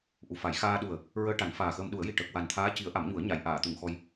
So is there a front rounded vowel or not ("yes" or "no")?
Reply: no